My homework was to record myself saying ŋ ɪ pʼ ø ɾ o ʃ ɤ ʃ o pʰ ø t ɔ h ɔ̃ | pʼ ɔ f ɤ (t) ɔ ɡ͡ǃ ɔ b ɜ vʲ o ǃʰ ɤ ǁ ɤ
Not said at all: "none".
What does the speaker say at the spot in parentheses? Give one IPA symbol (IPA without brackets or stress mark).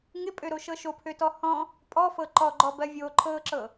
ǃ